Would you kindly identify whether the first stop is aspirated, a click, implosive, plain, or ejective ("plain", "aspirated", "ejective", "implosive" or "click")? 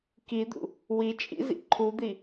plain